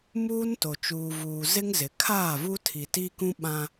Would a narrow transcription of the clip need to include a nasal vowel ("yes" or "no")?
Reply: yes